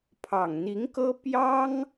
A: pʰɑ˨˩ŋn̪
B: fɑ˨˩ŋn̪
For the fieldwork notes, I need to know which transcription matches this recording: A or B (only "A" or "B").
A